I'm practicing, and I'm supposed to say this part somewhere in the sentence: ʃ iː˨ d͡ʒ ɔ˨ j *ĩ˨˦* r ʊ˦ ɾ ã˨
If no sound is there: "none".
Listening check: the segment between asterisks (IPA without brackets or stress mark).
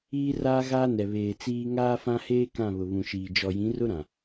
ĩ˨˦